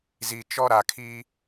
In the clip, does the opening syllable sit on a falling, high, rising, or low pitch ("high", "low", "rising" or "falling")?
low